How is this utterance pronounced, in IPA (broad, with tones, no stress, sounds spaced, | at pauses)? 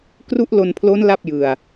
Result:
k r u˦˥ ʔ l o˧ n pʰ l o˦˥ n l a˥˩ p̚ j ɯ˧ a̯